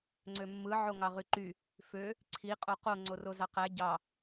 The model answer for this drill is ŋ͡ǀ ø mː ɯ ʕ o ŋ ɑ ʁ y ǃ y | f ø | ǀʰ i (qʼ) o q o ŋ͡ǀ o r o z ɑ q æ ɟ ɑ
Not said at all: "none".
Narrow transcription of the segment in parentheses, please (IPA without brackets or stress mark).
qʼ